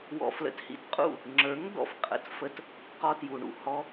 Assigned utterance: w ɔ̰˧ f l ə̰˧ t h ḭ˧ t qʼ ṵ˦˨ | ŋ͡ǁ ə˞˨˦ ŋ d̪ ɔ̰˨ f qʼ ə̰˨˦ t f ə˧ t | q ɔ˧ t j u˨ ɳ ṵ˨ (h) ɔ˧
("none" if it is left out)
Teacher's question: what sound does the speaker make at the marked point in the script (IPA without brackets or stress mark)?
h